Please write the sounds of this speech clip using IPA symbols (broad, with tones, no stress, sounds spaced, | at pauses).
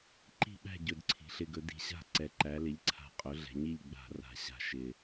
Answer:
ǃ i̤˥˨ ɓ æ̤˥˨ ɟ ɵ˨˩ d ǀʰ i̤˩˧ ɬ ɪ˨˩ ɡ ɵ˩˧ d i̤˨˩ ɕ a̤˥˨ ǀ ɛ˩˧ ǃ æ˩˧ l ɪ˩˥ ʎ ǀʰ a̤˨˩ qʼ ɵ˩˥ ɮ ɛ̤˩˧ ɲ i˥˨ ʎ ɡ͡b a̤˧˩˧ r a̤˨˩ ɕ a̤˨˩ ʃ ɪ˨˩